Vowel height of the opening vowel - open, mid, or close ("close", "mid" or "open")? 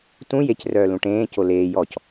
close